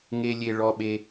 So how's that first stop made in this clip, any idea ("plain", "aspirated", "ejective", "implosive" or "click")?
implosive